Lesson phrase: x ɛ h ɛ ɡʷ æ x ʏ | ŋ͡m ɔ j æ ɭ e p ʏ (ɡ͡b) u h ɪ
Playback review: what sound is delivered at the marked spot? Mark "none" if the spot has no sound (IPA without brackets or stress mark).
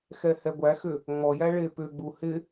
ɡ͡b